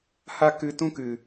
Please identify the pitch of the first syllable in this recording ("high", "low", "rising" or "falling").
high